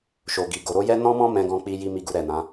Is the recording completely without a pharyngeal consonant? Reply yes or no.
yes